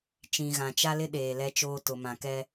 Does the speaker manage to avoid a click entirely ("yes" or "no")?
yes